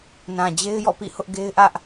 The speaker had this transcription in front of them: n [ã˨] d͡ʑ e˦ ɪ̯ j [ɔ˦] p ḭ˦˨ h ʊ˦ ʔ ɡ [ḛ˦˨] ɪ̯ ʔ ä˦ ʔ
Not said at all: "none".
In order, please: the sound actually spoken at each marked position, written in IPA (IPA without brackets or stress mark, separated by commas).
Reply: ã˨, ɔ̰˦˨, e˦